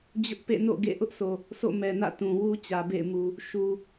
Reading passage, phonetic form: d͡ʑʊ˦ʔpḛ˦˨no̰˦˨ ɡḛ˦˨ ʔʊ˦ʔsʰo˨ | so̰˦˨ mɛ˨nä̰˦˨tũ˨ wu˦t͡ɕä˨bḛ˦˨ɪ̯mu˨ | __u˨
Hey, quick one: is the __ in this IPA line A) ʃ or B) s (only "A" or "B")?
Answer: A